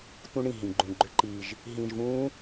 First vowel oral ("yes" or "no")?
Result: no